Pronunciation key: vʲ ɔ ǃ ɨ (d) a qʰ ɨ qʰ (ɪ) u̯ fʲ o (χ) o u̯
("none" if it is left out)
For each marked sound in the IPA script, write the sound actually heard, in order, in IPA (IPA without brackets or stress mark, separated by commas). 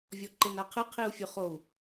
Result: n, i, χ